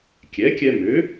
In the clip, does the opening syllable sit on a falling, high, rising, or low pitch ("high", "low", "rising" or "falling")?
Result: rising